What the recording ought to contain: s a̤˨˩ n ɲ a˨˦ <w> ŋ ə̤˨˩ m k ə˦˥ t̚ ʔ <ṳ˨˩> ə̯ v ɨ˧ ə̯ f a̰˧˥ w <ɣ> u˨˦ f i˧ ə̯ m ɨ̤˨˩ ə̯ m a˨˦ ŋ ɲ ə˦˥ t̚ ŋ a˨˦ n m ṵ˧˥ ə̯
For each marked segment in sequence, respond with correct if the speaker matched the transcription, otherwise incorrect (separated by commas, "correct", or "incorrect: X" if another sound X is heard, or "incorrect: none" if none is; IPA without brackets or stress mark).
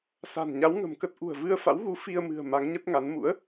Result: correct, correct, correct